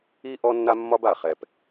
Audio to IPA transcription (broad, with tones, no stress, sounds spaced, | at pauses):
i˦ ʔ ɔ˦ nː a˦ mː ɒ˦ b a˨ χ ɛ˨ p